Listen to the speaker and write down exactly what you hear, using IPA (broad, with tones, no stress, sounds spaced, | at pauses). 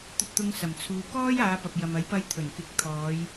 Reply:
t̪ ɵ˧ t̚ t̪ ʊ˧ ŋ s ɐ˨˩ m t͡sʰ uː˨ k ɔː˥ j aː˨˧ p ɐ˨ p̚ j ɐ˨ m ɐ˨˥ j p ɐ˧ j t̪ʰ ɵ˨˩ n k ɪ˨˥ k̚ t̪ʰ ɔː˨˧ j